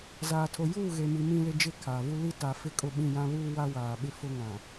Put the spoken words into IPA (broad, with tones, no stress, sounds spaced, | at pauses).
z aː˨ tʰ o˨ j uː˦˨ ɣ e˨ m i˨ m ĩ˦ l ɪ˦ d͡ʒ ɪ˦ kʰ aː˨ v u˦ l i˦ t a˨ f ɪ˦ kʼ ʊ˦ ɓ ĩ˦˨ j ã˦ β uː˦ w a˦ w aː˨ ɓ ɪ˦ f ʊ˦ ŋ ã˨